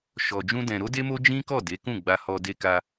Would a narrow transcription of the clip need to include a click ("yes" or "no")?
no